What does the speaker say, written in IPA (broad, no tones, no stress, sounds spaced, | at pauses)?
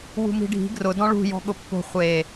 w ṳ m i̤ ɖʱ i̤ ɡ r ʊ d ɔ̃ ɭ ṳ j ɔ̤ ɠ ʊ pː o̤ χʷ e